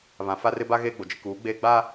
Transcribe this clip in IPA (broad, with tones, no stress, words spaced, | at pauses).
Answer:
βã˨fa˦rɪ˦ ba˦ ɣeː˦ɡ͡bo˨d͡ʒɪ˦ kuː˨˦ɡ͡beː˦ ɡ͡baː˦